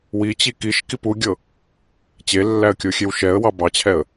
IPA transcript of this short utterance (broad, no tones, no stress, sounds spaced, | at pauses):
w i t͡ɕ i k i ʃ k i p u ɡʲ ɤ | t͡ɕ e lː æ ə̯ kʲ o xʲ e w ʃ ɛ ə̯ w ɑ b ɑ t͡ɕʰ ɛ ə̯